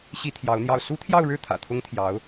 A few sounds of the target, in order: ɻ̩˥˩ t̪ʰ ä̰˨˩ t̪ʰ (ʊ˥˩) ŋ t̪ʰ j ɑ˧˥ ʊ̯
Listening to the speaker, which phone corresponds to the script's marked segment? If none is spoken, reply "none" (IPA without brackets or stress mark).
ʊ˥